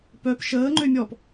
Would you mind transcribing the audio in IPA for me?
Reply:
p œ p ʃ əː ŋ͡ǃ ø mʲ ɔ p

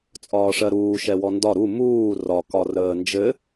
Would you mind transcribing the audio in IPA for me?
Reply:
t͡sʼ ɒː ʂ ɜ ɾ uː ʃ ɛ w ɔ n d ɒ ɾ u m uː r ɒ k ɒ r əː n d͡ʒ ɘ

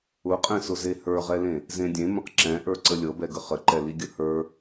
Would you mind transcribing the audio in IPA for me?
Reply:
ʊ qʼ ɛ̃ s ʊ z e h ə˞ ʁ ɛ l ẽ | z ẽ dʲ ẽ m ə̃ q ǁ ɛ̃ ʔ ə˞ ǀ ə lʲ ɤ b ɛ ɡ ə χ ə ǃ ɛ l i ɡʲ ə h ə˞

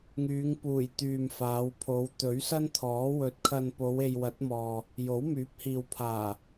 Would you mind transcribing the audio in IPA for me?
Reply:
ŋ yː˨˧ ŋ p uː˨˩ j t̪ yː˨ m f aː˨˧ w pʰ o˨˧ w t̪ ɵ˨˥ ɥ s ɐ˥ n t̪ʰ ɔː˨˥ w ɵ˨ t̚ kʰ ɐ˨ n p o˨˧ w e˨ j w ɐ˨˥ t̚ m ɔː˨ | j o˨˥ w m yː˨˥ p̚ h iː˨ w pʰ aː˨˩

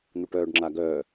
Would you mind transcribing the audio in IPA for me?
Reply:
n̪ u ʈ œː ɖ ŋ͡ǁ a ɡ œː

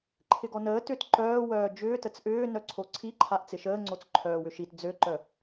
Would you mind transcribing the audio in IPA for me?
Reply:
ǃʰ ɪ ɡ ɔ n əː t ʏ t ǃ œː w œː d͡ʒ ʏː t ə t͡s ʔ ʏː n œ ǀʰ o ǀʰ i ǃʰ a ʔ t͡s ɪ ʃ əː ŋ͡ǀ o t͡s ǃʰ œː w ʏ ʃ i t d͡z ø ǃ œ

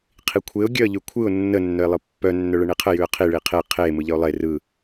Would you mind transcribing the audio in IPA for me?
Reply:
qʰ i kʷʰ e ʊ̯ ɡʲ œ ə̯ ʎ ʉ kʷʰ ɯ ʊ̯ nː ə nː œ ɪ̯ lˠ ɯ pː œ nː œ ɭ ə ɳ i qʰ ə j ʉ ə̯ qʰ i ɭ i qʰ e qʰ e m ɯ ʎ ə ʊ̯ lˠ e r ɯ

